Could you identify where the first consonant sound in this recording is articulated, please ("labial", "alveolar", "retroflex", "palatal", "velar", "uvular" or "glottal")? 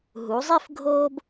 glottal